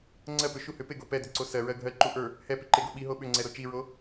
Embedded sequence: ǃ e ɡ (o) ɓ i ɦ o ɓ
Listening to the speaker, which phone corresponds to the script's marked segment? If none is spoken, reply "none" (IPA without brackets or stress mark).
o